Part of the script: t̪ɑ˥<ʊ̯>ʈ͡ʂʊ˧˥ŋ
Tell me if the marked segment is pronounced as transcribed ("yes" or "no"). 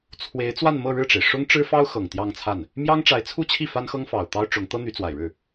yes